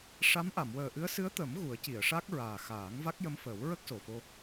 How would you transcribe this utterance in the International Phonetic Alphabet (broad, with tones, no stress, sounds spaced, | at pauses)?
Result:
ʂ a˧˥ m ʔ a˨˩˨ m w əː˨˩ ʔ ɨ˧˥ ə̯ s ɨ˧˥ ə̯ t̪ ə˨˩˦ m ɣ u˨˩˦ ə̯ c i˨˩˨ ə̯ ʂ a˦˥ k̚ ɹ aː˨˩ x aː˨˩˦ ŋ v a˦˥ k̚ j ə˧˥ m f əː˨˩˦ w ɹ ə˦˥ k̚ s o˨˩ f o˧